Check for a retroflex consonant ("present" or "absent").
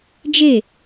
absent